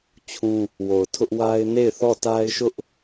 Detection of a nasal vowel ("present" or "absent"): present